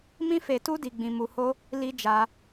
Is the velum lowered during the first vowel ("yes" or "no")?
yes